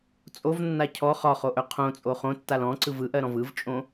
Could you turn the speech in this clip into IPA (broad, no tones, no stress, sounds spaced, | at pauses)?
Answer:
t͡sʼ o v nː a cʰ ɔ χ ɒ χ o ʔ œ qʰ õ t͡sʼ o χ õ tː a l ɔ̃ ǀ ɯ v ɯ ʔ ɜ ɾ ɔ̃ v ɯ v t͡ʃʼ õ